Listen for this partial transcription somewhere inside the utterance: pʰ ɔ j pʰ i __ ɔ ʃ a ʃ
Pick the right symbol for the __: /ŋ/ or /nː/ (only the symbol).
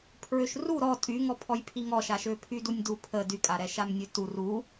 ŋ